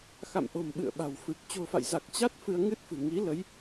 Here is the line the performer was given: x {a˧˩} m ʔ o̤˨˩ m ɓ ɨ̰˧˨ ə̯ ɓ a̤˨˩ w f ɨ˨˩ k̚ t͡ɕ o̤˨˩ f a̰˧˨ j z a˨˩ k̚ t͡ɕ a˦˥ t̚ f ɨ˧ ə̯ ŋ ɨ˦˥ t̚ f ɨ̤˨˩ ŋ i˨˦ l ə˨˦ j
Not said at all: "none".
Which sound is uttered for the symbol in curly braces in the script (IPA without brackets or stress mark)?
a̰˧˨